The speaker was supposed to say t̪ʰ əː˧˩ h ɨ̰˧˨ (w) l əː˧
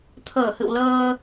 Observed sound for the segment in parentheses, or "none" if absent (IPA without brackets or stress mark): w